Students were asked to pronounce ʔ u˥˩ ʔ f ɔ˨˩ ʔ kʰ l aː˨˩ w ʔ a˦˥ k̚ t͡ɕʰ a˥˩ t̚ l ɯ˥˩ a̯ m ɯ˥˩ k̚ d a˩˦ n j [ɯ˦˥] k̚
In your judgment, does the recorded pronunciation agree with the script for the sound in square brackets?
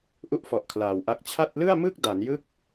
yes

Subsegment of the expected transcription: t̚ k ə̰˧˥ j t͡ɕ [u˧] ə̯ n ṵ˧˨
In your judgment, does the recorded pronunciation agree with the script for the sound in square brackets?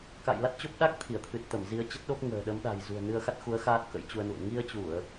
yes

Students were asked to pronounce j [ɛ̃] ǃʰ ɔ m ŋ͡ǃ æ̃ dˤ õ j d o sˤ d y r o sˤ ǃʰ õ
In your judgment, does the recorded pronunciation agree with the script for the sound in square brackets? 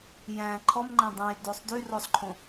no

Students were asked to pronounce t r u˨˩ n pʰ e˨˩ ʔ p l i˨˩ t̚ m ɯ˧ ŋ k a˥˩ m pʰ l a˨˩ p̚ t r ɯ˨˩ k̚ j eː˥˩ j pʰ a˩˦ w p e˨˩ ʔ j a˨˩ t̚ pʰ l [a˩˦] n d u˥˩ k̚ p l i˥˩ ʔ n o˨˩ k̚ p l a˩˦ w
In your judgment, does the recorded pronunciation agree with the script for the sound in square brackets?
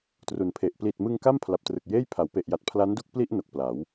no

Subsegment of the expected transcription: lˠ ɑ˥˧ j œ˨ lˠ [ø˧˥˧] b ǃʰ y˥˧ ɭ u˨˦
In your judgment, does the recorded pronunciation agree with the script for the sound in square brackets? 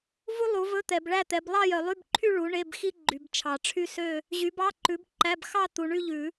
no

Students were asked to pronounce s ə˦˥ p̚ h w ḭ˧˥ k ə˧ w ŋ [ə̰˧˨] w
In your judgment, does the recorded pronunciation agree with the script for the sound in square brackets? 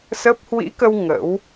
no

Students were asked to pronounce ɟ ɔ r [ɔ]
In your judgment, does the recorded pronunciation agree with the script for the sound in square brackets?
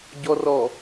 yes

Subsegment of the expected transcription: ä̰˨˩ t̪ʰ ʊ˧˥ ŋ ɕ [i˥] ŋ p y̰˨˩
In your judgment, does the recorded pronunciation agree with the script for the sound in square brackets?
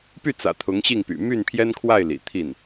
no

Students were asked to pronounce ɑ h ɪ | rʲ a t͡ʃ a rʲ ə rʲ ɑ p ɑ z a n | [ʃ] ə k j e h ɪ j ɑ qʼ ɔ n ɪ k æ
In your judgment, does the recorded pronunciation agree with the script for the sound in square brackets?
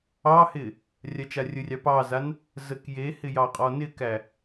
no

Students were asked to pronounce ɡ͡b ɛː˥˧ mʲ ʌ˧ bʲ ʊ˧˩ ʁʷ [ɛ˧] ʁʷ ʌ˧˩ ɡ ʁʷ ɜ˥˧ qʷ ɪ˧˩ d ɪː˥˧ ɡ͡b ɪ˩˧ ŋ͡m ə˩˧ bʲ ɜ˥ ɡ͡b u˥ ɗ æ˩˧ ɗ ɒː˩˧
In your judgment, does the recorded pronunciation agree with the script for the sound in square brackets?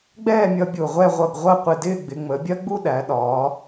no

